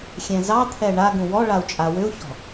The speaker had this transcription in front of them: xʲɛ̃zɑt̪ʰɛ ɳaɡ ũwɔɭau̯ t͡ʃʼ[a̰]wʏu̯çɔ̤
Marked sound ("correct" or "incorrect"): incorrect